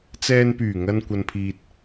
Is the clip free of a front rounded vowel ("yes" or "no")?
no